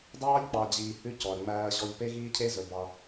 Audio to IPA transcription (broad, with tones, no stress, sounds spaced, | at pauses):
d ɑː˦ ʎ k͡p ɑ˨ d͡ʑ iː˨ h ʉ˦ c ɔ˨ ɐ̯ ŋ͡m æː˦ ɐ̯ ʑ ɔ˦ ʎ p e˦ ɣ iː˦ cʰ e˦ z ɵ˨ b ɑ˦